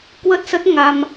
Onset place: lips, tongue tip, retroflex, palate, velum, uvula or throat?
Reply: velum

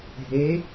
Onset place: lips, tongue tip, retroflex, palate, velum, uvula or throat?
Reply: throat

